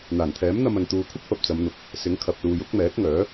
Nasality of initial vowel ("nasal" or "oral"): oral